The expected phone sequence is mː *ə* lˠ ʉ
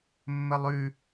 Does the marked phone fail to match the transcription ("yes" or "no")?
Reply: no